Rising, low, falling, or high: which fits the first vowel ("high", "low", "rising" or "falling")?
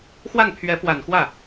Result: falling